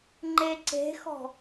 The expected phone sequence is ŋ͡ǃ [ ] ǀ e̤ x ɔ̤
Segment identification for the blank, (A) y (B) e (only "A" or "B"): B